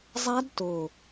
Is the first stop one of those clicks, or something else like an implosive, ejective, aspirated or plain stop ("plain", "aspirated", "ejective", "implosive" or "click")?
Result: plain